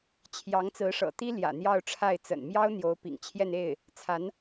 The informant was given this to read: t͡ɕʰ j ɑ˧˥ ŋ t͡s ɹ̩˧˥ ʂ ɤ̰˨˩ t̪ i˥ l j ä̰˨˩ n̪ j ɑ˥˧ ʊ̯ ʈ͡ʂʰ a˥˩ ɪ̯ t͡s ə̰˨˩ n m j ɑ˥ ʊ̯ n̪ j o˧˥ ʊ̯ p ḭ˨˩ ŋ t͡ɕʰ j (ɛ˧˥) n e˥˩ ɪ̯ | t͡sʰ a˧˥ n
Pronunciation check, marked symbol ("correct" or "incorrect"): incorrect